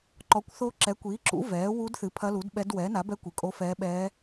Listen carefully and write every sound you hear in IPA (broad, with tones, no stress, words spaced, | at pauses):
ǃɔ˩˥kʷθo˧˥ ǁɛ˩˥kʷiː˩˥ǁṵ˩˥ vɛː˩˥ wu˧˥dθɨ˩˥ pʰɐ˧˥lu˩˥dɓɛ˧˥d wɛ˩˥na˩˥bɛ˧˥ kʷɨ˩˥kʼo˧˥fɛː˧˥ ɓɛː˧˥